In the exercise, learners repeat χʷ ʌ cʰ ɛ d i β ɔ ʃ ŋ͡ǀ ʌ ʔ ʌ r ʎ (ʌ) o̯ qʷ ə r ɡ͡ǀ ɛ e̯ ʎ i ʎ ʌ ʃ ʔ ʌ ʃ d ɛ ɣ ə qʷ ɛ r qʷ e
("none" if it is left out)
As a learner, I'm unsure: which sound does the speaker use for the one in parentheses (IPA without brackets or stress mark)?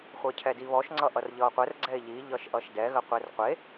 ʌ